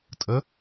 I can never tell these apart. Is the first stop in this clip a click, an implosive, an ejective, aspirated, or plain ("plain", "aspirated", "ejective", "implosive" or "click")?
ejective